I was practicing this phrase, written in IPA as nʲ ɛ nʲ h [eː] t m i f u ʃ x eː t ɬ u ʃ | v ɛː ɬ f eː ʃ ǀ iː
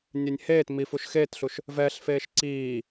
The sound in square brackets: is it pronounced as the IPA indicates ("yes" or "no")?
yes